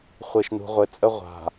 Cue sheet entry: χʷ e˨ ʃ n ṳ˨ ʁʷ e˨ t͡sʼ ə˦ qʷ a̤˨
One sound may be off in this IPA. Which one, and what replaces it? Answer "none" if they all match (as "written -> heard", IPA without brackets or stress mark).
qʷ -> ʁʷ